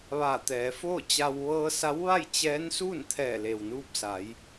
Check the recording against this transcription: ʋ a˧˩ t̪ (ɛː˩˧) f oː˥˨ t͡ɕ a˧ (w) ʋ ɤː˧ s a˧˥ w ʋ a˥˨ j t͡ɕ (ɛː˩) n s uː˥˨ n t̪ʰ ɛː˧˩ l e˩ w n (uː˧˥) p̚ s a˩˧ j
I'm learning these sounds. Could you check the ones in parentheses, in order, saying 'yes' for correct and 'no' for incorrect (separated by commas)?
yes, yes, no, no